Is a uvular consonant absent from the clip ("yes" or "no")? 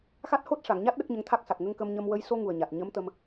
yes